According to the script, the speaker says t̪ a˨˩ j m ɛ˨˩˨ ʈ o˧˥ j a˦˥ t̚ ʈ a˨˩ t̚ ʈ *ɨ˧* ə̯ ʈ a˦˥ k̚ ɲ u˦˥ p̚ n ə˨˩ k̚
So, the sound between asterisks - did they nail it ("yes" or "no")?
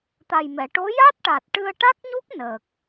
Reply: yes